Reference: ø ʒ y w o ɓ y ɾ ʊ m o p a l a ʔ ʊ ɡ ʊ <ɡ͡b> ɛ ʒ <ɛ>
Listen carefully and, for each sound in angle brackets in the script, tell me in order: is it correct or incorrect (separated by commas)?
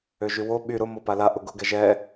incorrect, correct